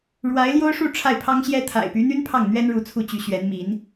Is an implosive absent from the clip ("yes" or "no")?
yes